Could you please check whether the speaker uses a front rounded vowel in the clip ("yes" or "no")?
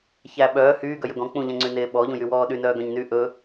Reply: yes